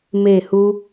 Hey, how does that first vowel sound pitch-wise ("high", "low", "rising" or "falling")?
falling